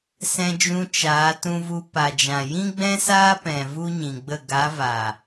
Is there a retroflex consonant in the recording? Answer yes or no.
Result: no